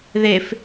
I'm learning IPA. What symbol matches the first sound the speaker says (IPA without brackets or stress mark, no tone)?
ð